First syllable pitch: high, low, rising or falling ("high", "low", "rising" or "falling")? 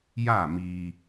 falling